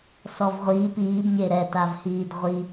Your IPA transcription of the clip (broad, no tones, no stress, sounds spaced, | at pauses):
s ɔ v ʁʷ iː p iː b ɲ e ɾ ɛ t a v h iː d ʁʷ i